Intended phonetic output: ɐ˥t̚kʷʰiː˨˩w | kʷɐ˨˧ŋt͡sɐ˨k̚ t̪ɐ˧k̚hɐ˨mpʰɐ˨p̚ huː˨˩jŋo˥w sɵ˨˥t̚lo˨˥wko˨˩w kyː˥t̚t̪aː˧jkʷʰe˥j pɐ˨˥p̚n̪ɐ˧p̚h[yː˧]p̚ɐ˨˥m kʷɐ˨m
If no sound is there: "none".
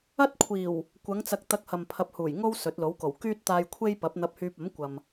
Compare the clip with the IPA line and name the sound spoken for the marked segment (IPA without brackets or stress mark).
yː˧